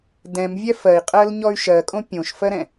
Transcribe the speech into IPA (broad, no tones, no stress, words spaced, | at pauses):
dɛ̃mvʲɛ fɜi̯qʼɜlɲɔy̯ ʃɜkʼõ pʲõʃfɜɾɛ̃